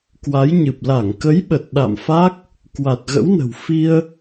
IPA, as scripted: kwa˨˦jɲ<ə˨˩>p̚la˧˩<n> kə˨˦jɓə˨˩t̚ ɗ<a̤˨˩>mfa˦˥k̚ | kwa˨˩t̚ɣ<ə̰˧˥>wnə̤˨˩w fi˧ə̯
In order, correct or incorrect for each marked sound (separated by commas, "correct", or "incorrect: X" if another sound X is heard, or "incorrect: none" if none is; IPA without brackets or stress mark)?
incorrect: ɨ˨˩, incorrect: ŋ, incorrect: a̰˧˨, correct